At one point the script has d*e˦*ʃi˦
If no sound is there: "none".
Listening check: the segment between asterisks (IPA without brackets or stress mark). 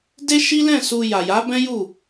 e˦